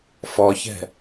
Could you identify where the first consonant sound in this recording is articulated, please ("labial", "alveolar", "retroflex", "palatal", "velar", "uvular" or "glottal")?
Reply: labial